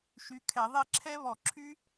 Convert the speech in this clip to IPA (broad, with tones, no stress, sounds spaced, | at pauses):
ʃ y˨˦ kʰ ɛ˧˩˧ ðˤ e˦˨ ǁʰ ɛ˦˥ β ɔ˧˩˧ ǁʰ y˦˥